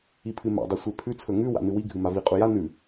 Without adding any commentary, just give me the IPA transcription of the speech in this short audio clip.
ipʰɨma̰ dˤʉsʷepʰʉ t͡sʰɵŋʉ wa̰nɨwi ɡʱɨmavi qʼuja nʉ

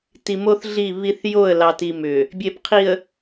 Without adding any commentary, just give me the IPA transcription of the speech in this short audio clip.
ti˨mo˦θ ɮi˦˨βi˦θ jo˦˨ə̯lɑ˨ti˨ mʏ˨ | bʲe˨pqʰi˨ə̯

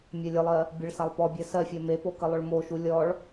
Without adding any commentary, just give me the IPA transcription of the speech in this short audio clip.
mʲɜlʲəlˠɜ | bʲəɭsalˠ pɔ bʲɜsɜfʲɜ mepo kəlˠʊɭmoʃu lʲɔɭ

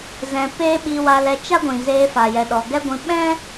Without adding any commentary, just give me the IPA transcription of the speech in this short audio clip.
zɛ̃˧peː˦ ɓi˧wa˧lɛ˧ t͡ʃa˦ɡʷĩ˨ zeː˧fa˨ jɛ˨ɗɔ˨ɡɛ˦ɡʷĩ˧ ɓɛ̃˦

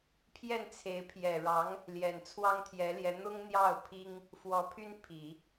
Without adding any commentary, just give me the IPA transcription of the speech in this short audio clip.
pʰjɛ˥˩nt͡sʰe˧˥ɪ̯ pʰjɛ˨˩ɻɑ˧˥ŋ | ljɛ˨˩nt͡sʰwɑ˥ŋt̪ʰjɛ˧˥ljɛ˧˥ n̪ʊ˥ŋn̪jɑ˥˩ʊ̯pʰi˥ŋ | fwɔ˧˥pʰy˥n pʰi˨˩˦

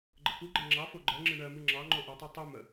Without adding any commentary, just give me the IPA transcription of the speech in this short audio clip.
ɡ͡ǃəkuɡ͡ǃɛ ŋ͡ǁɑfo ɡ͡ǃɜŋ͡ǁɨ ɳɜmɨ ŋ͡ǁɑ ŋ͡ǃoʔɨtˤa tˤu mə

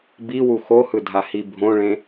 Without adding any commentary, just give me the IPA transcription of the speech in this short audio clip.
biwu xohɯdʱahi bʱõɭẽ

